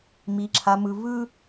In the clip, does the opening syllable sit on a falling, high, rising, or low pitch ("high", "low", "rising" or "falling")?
high